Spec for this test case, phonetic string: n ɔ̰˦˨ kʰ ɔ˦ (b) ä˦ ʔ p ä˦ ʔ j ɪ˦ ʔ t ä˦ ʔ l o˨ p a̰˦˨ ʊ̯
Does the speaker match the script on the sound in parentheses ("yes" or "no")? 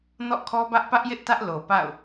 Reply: yes